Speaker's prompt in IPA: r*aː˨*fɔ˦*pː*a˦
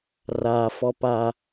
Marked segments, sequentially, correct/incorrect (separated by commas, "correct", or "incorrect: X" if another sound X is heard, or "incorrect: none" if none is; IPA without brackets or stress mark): correct, incorrect: p